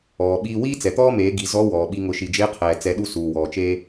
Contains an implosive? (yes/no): yes